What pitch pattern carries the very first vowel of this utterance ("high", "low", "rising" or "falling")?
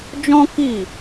high